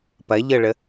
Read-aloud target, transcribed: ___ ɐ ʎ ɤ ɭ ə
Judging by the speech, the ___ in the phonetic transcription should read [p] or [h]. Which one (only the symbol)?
p